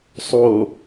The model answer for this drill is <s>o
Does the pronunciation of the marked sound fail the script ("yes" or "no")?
yes